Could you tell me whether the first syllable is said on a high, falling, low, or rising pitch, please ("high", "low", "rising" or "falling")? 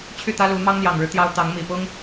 falling